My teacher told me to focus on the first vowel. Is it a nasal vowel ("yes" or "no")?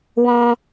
yes